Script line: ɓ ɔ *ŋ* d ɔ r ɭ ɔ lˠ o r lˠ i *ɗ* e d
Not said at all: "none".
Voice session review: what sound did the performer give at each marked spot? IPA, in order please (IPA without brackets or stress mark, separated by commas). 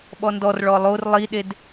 n, ɗ